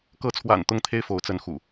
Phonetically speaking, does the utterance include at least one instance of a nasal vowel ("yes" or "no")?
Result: no